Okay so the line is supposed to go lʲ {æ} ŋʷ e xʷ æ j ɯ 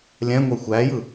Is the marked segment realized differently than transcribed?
yes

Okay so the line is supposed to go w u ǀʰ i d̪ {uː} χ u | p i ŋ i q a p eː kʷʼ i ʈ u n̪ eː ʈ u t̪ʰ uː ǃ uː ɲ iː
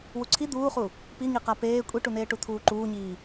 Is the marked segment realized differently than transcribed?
no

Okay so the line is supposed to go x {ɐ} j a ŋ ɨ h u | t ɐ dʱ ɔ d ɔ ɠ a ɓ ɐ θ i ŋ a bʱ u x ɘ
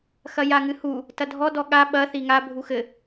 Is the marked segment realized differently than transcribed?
no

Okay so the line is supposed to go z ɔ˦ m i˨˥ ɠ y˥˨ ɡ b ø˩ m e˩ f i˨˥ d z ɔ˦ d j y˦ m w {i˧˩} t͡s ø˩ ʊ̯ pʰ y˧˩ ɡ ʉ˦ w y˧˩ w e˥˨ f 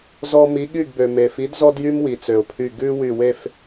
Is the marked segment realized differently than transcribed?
yes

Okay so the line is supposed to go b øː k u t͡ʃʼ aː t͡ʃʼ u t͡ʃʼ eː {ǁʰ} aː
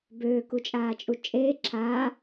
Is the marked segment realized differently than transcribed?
no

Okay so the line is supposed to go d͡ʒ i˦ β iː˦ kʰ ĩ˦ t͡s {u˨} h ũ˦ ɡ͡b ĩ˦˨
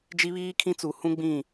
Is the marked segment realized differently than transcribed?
no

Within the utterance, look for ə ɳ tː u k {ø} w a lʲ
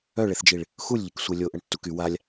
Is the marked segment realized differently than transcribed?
yes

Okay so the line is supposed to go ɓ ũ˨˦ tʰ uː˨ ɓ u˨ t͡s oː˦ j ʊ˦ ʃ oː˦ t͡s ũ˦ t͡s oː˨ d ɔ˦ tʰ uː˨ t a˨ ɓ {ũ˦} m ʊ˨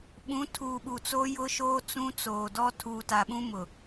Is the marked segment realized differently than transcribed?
no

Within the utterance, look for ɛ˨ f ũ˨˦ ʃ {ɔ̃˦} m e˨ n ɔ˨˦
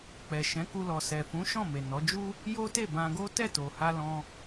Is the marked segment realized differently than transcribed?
yes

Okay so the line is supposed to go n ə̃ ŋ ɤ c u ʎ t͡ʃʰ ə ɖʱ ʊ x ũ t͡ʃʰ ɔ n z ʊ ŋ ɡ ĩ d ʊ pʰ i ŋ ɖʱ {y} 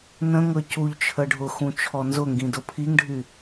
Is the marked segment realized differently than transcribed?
no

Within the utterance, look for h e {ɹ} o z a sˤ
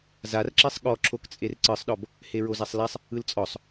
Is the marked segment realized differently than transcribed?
no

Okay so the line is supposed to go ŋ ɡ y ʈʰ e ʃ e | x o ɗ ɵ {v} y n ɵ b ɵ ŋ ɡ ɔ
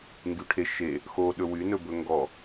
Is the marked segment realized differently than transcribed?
yes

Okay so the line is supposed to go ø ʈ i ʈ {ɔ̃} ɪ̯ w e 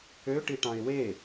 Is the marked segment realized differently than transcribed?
yes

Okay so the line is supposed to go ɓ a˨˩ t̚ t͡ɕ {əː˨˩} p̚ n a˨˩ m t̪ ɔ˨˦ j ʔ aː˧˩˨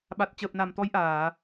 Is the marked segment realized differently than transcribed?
no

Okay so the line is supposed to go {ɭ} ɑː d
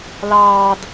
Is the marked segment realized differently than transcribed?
yes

